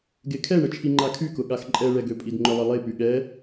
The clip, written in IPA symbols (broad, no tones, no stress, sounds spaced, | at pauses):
ɡ e kʰ ɛ ɳ ə t͡ʃʰ i ŋ͡ǃ a kʰ y k ʊ ɠ a x ǃʼ ɛ ɭ ɛ ɡ ø pʼ i d ŋ͡ǃ ʊ lˠ ə lˠ e p y ɠ ɛ